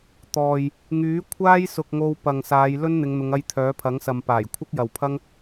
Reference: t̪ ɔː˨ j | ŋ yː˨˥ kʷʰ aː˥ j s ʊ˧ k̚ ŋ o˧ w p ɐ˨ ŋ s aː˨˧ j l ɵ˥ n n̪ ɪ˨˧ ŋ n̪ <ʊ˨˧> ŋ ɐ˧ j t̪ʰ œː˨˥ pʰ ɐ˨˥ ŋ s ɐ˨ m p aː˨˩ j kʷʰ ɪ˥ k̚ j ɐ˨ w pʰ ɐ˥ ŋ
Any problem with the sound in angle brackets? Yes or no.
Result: no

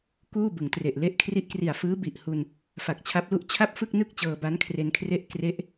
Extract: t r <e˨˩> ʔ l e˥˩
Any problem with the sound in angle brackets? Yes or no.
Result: no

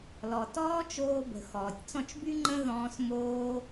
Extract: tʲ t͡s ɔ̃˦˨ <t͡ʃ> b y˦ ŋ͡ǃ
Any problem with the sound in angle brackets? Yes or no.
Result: no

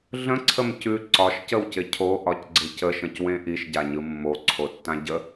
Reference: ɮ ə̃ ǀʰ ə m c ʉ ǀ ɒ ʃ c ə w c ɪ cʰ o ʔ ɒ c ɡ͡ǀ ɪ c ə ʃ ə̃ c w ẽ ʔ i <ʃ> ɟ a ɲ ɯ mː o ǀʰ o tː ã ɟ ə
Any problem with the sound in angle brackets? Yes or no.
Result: no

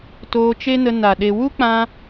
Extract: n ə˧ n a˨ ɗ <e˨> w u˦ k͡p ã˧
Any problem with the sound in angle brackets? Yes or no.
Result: no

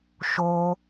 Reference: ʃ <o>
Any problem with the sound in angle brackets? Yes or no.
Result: no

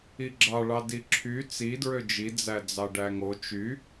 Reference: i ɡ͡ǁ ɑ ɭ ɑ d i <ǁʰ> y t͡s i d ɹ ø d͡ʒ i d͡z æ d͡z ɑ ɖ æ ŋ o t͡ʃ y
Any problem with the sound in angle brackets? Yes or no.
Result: no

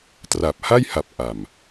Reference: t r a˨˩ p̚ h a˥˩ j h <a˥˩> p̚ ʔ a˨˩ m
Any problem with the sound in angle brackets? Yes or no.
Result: yes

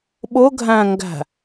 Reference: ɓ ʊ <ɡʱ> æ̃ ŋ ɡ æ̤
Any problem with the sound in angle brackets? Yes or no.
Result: no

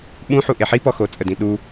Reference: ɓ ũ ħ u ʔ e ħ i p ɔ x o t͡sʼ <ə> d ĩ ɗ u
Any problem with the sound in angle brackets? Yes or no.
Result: no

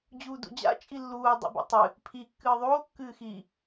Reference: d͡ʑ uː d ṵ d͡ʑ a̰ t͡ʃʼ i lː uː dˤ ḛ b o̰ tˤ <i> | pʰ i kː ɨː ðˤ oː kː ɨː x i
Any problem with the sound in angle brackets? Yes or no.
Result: yes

